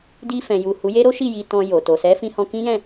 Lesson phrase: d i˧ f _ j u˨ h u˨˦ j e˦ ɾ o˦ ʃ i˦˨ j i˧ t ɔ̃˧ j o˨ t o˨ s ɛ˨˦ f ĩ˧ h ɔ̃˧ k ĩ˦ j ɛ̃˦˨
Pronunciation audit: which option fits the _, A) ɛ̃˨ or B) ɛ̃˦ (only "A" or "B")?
A